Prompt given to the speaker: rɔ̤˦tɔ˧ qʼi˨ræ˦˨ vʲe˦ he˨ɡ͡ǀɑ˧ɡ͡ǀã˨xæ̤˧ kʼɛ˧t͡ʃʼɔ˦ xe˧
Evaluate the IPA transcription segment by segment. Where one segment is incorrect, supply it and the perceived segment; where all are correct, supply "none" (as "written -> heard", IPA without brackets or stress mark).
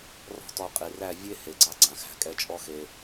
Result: none